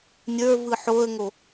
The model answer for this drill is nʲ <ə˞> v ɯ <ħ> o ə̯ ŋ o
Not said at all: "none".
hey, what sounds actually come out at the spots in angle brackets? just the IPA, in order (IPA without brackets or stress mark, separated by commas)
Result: ə˞, ħ